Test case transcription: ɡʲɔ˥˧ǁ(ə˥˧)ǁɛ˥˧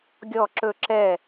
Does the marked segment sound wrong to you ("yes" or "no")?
yes